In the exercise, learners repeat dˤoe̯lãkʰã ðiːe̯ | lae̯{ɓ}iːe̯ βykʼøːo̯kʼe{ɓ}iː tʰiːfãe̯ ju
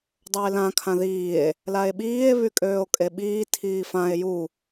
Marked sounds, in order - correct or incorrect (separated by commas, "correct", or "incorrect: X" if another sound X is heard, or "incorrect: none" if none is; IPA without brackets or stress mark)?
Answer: correct, correct